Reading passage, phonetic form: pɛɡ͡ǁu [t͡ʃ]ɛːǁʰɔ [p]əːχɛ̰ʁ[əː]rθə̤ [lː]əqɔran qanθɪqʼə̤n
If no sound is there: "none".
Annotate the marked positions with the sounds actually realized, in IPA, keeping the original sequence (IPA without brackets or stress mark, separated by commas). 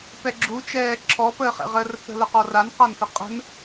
t͡ʃ, p, əː, l